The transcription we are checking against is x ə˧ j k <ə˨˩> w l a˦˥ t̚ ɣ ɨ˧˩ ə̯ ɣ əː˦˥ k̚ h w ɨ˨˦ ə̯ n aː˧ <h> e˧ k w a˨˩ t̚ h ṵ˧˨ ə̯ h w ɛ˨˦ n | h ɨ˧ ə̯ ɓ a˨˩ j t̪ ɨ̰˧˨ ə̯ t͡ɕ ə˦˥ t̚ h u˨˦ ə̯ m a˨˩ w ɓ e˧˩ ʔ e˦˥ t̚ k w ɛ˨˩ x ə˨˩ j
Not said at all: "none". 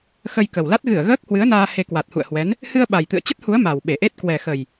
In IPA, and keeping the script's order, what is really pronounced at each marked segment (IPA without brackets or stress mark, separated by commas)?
ə˨˩, h